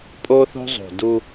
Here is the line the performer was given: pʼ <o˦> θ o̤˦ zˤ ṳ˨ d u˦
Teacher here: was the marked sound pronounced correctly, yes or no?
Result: yes